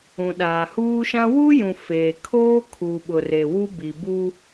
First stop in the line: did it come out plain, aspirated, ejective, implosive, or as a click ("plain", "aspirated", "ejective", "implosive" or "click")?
implosive